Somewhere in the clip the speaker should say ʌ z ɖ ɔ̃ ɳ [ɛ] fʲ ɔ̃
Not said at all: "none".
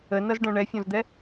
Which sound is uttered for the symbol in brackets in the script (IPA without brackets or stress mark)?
ɛ